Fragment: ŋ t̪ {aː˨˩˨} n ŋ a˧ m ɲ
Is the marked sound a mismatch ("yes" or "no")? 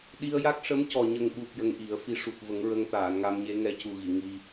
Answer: no